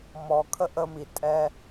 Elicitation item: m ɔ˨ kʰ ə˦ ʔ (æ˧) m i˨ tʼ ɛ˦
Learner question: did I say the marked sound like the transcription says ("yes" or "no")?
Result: no